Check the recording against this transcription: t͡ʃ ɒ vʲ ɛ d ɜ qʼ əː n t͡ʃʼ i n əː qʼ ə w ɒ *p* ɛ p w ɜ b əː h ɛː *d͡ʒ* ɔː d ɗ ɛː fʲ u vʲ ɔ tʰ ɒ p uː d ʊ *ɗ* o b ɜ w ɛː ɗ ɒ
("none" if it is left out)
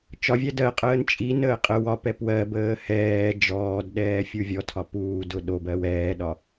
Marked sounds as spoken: p, d͡ʒ, ɗ

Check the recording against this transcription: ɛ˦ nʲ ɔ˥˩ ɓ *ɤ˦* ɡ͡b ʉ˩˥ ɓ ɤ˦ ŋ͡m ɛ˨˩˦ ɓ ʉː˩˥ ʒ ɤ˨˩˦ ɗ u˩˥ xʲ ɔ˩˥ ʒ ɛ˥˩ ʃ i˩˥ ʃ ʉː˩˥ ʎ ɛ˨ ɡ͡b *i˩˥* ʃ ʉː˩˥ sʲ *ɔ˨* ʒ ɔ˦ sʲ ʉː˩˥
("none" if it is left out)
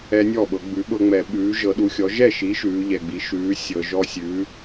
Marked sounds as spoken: ɤ˨˩˦, i˩˥, ɤ˨

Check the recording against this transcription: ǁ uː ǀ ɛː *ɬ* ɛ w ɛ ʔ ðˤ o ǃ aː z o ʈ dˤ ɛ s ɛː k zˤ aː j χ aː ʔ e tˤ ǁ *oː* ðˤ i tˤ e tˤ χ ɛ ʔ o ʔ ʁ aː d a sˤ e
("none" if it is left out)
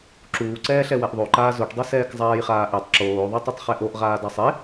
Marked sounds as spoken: ɬ, oː

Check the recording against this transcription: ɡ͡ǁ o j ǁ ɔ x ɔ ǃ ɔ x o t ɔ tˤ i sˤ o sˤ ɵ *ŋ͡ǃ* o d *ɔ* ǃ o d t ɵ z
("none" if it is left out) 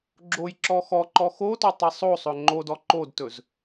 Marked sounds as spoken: ŋ͡ǃ, ɔ

